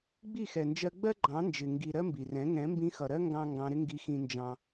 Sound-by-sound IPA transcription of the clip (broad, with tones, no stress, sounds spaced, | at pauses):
ɡ͡b i˦˨ x ɛ˨ n d͡ʒ ɜ˧ ɡ͡b ɜ˦ ɡ͡ǃ ɑ̃˨˦ n d͡ʒ ɪ˨ ŋ ɡ i˨ ɾ ɜ˦ m b i˨ r ɛ̃˨˦ ŋ ɛ̃˨˦ m b ĩ˧ x ʌ˨ ɾ ɜ˦ ŋ ɡ ɑ̃˦ ŋ ɡ ɑ̃˧ ɾ ɪ˦ ŋ ɡ i˦ x ĩ˦ n d͡ʒ ɑ̃˦